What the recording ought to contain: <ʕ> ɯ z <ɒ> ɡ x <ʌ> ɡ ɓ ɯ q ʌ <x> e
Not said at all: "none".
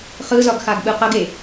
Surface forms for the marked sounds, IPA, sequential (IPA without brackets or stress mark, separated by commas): χ, ɒ, a, ɡ